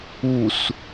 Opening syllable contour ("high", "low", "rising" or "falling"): low